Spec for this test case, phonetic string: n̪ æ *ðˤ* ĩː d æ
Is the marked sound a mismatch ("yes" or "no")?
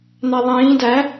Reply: no